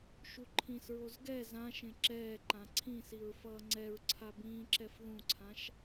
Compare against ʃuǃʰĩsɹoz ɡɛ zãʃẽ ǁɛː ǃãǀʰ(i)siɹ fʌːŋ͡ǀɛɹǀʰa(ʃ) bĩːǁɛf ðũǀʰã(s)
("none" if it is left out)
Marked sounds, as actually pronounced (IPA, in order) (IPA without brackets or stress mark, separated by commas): ĩ, none, ʃ